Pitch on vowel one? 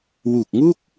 low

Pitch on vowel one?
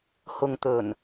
low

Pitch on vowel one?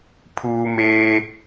high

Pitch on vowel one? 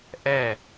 falling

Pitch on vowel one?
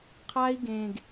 high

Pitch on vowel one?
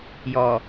low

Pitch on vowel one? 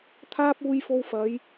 high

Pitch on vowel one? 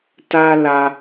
high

